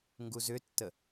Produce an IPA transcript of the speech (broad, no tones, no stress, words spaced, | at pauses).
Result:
ŋɡuzʏtːə